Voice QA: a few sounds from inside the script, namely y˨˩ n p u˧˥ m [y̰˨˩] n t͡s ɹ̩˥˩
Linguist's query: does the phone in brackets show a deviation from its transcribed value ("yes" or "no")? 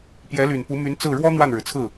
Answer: yes